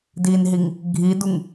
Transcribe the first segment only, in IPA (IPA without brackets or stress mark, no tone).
d